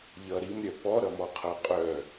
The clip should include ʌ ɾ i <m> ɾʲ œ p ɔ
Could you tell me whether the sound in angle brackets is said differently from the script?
no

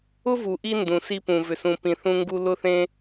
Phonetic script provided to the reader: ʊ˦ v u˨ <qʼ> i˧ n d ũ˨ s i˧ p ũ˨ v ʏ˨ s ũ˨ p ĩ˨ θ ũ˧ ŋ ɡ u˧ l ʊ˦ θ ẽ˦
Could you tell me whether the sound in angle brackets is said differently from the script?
yes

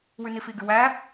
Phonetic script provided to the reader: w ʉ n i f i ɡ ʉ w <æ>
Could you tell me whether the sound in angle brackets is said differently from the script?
no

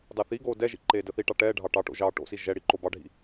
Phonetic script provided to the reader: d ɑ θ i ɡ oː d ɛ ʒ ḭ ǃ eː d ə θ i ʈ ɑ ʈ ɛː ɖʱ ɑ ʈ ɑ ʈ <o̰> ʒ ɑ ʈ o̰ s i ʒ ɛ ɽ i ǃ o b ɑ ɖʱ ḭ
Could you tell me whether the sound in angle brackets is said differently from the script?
no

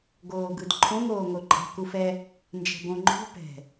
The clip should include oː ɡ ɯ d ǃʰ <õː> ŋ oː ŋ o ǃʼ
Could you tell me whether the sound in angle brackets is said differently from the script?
yes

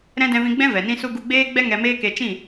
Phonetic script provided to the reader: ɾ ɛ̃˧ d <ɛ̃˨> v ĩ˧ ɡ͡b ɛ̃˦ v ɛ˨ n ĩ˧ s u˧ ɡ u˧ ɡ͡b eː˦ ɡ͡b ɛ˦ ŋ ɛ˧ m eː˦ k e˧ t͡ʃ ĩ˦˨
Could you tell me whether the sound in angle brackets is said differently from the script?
yes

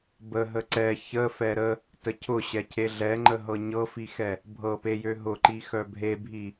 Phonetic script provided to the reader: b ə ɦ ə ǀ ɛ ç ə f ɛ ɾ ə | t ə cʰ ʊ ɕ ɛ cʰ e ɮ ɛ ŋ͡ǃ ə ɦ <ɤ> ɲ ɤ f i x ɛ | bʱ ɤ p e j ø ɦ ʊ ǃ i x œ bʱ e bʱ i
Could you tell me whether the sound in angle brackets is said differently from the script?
no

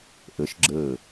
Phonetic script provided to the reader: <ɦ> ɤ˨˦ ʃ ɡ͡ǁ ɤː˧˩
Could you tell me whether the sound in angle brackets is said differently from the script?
yes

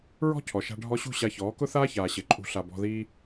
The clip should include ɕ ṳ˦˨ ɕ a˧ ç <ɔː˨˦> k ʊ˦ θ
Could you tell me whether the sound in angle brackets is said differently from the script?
no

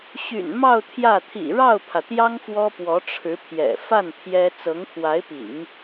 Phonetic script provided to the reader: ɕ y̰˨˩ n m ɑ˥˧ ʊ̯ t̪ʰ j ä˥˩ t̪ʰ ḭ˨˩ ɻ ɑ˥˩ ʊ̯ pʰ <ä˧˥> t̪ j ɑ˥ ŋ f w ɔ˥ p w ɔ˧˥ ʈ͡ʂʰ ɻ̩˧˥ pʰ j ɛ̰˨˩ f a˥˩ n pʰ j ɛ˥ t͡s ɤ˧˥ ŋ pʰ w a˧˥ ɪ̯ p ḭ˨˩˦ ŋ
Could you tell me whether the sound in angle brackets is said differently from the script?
yes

